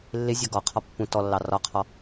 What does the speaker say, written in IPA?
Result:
lː ɪ zʲ ɒ ɡ ɔ qʰ ɒ pː ũ t ɔ lː ɑ r ɒ qʰ ɔ

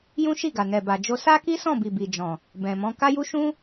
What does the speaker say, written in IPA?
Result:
j ũ˦ ʃ i˦˨ ɡ a˨ n ɛ˨ b a˨ d͡ʒ o˧ s a˦ k i˦ s ɔ̃˦˨ b i˨ b i˨ d͡ʒ ɔ̃˨ | b ɛ̃˨ m ɔ̃˨˦ k a˦ j u˦ ʃ ũ˦

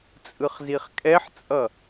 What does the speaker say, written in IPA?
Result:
t͡sʼ ɯ χ z i χ kʼ ɛ ħ t͡sʼ ʌ

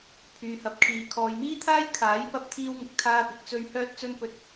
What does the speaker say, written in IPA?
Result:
pʰ yː˨ h ɐ˨˥ p̚ kʰ iː˨˧ kʰ ɔː˨ j m iː˥ t̪ʰ aː˥ j kʰ aː˨˥ j p ɐ˥ p̚ t̪ʰ iː˥ w ŋ ɪ˨ k̚ t̪ʰ aː˥ p ɪ˨ k̚ t͡s ɵ˧ ɥ h œː˥ t̚ t͡s ɵ˥ n p ɵ˧ t̚

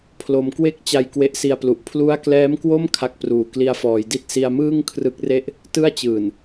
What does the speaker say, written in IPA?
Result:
pʰ l o˧ m k w e˥˩ k̚ t͡ɕ a˧ j k w e˦˥ ʔ s i˧ a̯ p l u˨˩ ʔ pʰ l u˦˥ a̯ k l ɛː˦˥ m k w o˥˩ m kʰ a˦˥ k̚ p r uː˨˩ k l i˧ a̯ f ɔː˩˦ j d i˥˩ t̚ s i˧ a̯ m ɯː˥˩ ŋ kʰ r ɯ˦˥ k̚ r e˥˩ ʔ | t ɯ˥˩ a̯ t͡ɕ ɯː˨˩ n

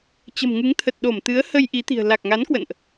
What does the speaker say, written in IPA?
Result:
t͡ɕ ə̤˨˩ m ŋ ɨ˨˦ ŋ t̪ʰ ə˨˩ t̚ ɗ o˧˩ m t̪ ɨ˨˦ ə̯ h ə˧ j ʔ i˨˦ t̪ i̤˨˩ ə̯ l a˨˩ k̚ ŋ a˨˦ n k w ə̰˧˨ n ʔ

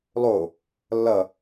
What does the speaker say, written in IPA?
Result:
lˠ o | lː ʌ

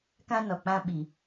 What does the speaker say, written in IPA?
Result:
k ã˦ n ɔ˨ k͡p ã˦ ɓ i˨

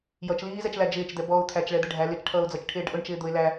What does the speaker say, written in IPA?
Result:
j ʌ t͡ʃ l iː z ɛ t͡ʃ l æ d͡ʒ ɪː t͡ʃ d̪ ɛ b ɔ ʊ̯ t̪ʰ æ t͡ʃ ɭ ɛ d̪ ɪ ɖʱ æ l ɪ t͡ʃ ʈʰ ʌː ʊ̯ d͡z ʌ t͡ʃ ʈʰ ɪː ɖ ʔ ʊ ɳ t͡ʃ ɪː d̪ ʊ ɪ̯ l æ

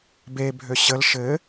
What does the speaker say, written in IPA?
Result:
b e bʱ ø ɕ ə l ʃ ɘ

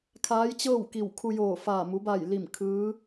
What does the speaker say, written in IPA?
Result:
kʰ aː˧˥ j t͡ɕ ɤː˥˨ w k i˧˩ w kʰ u˧ j oː˧˩ f aː˧˩ m u˩˧ b a˧˩ j l i˧˩ m kʰ ɯː˧˥

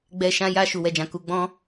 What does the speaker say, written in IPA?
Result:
ɡ͡b ɛ˧ ʃ ã˧ j a˧ ʃ u˨ w ɛ˨ d͡ʒ ã˨ k u˨ ɡ͡b ɔ̃˧

